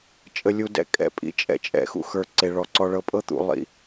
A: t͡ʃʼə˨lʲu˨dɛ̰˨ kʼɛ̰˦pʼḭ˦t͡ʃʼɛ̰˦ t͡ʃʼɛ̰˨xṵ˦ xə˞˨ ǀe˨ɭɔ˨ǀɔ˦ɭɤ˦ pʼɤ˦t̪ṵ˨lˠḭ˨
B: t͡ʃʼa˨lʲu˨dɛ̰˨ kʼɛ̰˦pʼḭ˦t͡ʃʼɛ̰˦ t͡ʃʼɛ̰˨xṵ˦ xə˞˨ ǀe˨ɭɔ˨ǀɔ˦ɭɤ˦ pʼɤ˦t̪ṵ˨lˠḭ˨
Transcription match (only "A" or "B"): A